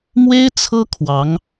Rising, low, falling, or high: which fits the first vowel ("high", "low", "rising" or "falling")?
high